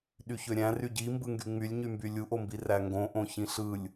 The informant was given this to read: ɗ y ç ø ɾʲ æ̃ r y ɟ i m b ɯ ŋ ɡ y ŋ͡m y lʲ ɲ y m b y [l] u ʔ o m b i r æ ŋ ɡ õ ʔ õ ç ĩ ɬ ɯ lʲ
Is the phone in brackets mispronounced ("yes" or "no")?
yes